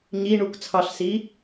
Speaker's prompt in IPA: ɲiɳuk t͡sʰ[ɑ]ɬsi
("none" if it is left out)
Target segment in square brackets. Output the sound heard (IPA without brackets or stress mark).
ɑ